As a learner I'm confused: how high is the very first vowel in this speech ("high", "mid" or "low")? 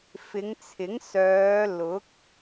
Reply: high